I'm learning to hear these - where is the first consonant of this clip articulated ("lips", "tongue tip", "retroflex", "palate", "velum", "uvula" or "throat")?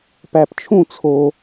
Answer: lips